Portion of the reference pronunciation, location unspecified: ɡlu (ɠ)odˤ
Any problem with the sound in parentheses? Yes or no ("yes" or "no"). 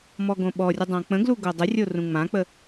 yes